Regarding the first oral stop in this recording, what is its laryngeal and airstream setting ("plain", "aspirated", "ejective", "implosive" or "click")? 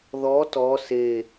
plain